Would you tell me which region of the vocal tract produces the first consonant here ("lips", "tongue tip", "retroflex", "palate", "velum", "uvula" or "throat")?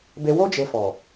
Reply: lips